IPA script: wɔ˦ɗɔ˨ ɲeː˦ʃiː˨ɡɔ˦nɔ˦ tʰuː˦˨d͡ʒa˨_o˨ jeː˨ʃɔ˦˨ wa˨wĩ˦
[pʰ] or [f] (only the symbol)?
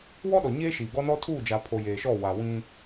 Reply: pʰ